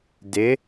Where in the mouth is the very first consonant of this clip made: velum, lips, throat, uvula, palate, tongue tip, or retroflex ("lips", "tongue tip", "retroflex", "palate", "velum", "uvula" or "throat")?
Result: tongue tip